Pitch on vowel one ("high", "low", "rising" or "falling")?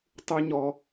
high